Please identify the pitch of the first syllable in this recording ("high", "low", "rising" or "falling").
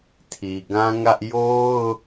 low